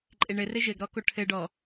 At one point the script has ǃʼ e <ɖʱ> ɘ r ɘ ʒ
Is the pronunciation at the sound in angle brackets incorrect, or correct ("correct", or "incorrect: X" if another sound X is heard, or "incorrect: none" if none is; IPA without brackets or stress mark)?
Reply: incorrect: ɳ